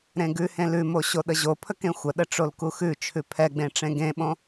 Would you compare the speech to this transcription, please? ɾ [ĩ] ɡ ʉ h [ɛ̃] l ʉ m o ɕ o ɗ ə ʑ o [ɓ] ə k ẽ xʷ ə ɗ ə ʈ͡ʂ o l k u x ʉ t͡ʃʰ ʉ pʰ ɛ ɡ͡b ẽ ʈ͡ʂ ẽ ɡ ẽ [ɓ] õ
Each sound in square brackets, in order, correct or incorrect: incorrect, incorrect, incorrect, correct

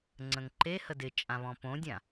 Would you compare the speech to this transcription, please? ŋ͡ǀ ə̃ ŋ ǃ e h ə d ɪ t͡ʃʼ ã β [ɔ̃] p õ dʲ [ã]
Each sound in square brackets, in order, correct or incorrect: correct, correct

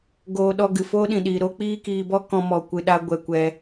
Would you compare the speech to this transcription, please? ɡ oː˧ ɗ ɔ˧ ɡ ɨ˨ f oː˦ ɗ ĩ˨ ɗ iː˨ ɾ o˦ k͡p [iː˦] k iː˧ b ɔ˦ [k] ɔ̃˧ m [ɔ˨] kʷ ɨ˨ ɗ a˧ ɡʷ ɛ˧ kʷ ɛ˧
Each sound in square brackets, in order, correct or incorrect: correct, correct, correct

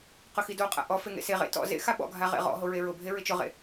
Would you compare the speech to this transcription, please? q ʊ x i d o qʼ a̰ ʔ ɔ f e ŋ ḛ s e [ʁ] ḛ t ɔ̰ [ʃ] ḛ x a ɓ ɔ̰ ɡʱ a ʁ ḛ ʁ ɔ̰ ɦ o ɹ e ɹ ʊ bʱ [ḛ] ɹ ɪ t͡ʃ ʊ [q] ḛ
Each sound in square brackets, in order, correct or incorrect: correct, incorrect, incorrect, incorrect

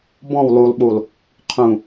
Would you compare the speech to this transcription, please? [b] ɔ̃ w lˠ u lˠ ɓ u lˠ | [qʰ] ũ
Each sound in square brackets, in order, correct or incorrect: correct, correct

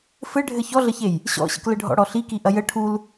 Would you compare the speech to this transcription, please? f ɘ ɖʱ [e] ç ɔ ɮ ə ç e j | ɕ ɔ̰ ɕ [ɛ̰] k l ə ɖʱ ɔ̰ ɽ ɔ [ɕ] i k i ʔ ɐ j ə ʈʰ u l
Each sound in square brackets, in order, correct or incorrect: incorrect, incorrect, incorrect

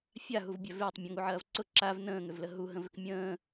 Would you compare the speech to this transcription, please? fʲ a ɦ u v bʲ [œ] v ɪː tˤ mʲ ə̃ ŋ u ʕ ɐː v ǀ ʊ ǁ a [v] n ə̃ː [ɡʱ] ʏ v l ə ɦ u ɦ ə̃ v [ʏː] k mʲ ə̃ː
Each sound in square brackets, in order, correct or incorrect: correct, correct, incorrect, incorrect

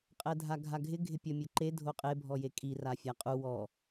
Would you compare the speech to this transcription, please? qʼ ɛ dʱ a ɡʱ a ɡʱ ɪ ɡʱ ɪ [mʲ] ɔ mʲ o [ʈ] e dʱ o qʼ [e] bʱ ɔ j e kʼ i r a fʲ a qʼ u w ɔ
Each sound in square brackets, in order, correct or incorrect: incorrect, incorrect, correct

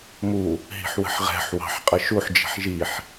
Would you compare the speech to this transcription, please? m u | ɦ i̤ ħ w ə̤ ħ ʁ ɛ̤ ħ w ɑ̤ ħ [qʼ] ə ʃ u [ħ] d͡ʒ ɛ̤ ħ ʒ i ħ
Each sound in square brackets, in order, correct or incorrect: correct, correct

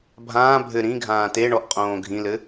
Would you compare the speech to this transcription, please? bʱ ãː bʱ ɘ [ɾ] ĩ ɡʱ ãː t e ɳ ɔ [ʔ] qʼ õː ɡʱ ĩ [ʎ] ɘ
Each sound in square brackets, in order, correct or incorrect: correct, correct, incorrect

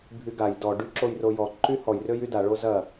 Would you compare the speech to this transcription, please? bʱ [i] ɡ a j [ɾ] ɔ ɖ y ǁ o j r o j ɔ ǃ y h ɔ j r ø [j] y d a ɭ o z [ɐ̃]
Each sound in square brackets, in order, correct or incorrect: incorrect, incorrect, correct, incorrect

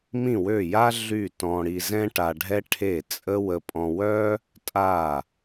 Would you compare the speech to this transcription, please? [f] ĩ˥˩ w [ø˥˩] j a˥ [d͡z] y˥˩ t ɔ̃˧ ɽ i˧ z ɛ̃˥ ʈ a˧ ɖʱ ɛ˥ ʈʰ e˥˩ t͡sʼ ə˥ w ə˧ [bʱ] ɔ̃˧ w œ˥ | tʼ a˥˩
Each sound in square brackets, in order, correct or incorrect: incorrect, correct, incorrect, incorrect

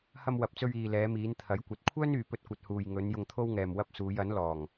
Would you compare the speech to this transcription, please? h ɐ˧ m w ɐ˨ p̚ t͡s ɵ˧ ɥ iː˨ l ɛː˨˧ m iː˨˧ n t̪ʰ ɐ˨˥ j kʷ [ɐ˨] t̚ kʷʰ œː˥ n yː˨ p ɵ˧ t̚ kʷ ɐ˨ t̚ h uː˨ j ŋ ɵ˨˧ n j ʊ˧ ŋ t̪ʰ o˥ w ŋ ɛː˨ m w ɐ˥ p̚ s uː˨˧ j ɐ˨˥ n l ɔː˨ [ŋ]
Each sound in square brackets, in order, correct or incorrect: correct, correct

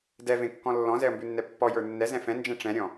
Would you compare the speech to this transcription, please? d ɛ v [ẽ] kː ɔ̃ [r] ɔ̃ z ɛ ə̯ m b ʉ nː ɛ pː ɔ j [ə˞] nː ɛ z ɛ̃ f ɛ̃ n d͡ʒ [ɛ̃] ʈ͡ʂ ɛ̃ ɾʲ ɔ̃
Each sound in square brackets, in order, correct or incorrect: correct, incorrect, correct, correct

